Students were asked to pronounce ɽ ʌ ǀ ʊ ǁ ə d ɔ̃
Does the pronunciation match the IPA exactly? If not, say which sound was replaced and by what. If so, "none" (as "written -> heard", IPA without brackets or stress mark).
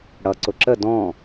none